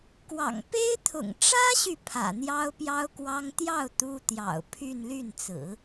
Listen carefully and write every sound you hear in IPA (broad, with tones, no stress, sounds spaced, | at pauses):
k w ɑ̰˨˩ ŋ p e˥ ɪ̯ t̪ʰ ʊ̰˨˩ ŋ ʈ͡ʂ ä˥ ɕ y˨ pʰ ä̰˨˩ n̪ j ɑ˥ ʊ̯ p j ɑ˥ ʊ̯ k w ɑ˥ ŋ t̪ j ɑ˥˩ ʊ̯ t̪ u˥ t̪ j ɑ̰˨˩ ʊ̯ pʰ y˥˧ n l y˥˩ n t͡s ɹ̩˨˩˦